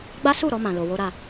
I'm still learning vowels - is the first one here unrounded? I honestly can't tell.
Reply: yes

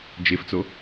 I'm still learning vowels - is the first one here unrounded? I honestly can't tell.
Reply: yes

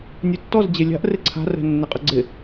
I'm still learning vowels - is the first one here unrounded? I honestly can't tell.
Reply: no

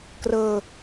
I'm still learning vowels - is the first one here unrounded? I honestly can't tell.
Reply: yes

